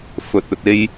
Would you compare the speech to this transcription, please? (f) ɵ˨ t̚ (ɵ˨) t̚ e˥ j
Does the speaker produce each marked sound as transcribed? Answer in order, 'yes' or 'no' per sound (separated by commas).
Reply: yes, yes